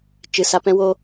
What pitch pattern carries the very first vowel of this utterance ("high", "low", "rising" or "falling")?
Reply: rising